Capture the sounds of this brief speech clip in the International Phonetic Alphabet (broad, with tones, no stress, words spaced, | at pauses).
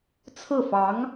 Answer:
t͡sʰɹ̩˥˩fɑ˧˥ŋ